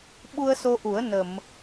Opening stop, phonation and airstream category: implosive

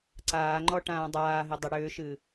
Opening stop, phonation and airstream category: click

